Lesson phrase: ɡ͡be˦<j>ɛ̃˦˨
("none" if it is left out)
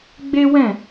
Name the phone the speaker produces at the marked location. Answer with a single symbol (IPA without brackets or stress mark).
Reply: w